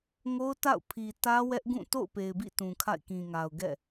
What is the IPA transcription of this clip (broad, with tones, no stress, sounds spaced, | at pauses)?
ŋ o˦ ʊ̯ t a̰˦˨ ʊ̯ pʰ i˨ t ä˦ w ɛ˦ ʔ ɡ ũ˦˨ t o̰˦˨ ʊ̯ p e˨ ɪ̯ b ḭ˦˨ t ũ˨ kʰ a̰˦˨ ɪ̯ k ĩ˨ ŋ a˨ ʊ̯ ɡ ɛ̰˦˨